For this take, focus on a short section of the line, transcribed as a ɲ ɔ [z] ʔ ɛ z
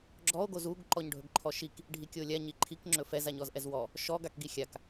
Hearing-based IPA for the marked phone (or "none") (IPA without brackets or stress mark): z